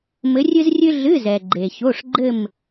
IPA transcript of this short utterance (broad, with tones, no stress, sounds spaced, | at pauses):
m ɘ˧˥ rʲ ɨ˥ z rʲ ɨ˥ ɮ ɨ˧˥˧ z ɛ˨ ɡ͡ǃ e˨ ç o˧˥˧ ʂ ɡ͡ǃ ɘ˥˧ m